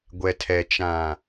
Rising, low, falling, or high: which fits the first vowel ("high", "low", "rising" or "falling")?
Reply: low